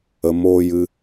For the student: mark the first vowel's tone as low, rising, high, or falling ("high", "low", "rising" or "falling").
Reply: low